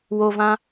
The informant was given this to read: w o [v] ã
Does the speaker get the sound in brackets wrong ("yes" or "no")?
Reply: no